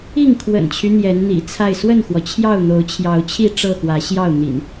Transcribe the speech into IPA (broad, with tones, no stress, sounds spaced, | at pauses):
i˥˨ ŋ kʰ w ə̰˨˩ n t͡ɕʰ y˦ n̪ j ɛ˨˦ n n̪ ḭ˨˩ t͡sʰ a˥˨ ɪ̯ s w ə˥˨ n x w ɔ˩ t͡ɕʰ j ɑ˥˨ ʊ̯ n̪ o˨˦ ʊ̯ t͡ɕʰ j ɑ˨˦ ʊ̯ t͡ɕʰ i˥˨ ʈ͡ʂ ɤ˥˨ x w ä˨˦ ɕ j ɑ˥˨ ʊ̯ n̪ ḭ˨˩ n